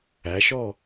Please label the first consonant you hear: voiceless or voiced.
voiceless